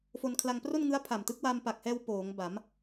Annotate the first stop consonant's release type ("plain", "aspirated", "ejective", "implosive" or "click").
aspirated